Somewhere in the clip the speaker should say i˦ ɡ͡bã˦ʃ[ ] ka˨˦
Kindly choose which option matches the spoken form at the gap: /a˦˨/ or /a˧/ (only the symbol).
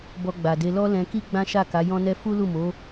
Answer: a˦˨